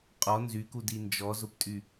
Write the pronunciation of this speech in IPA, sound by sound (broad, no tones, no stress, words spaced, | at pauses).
qʼɔ nzykudi nd͡ʒɔzʊptʼy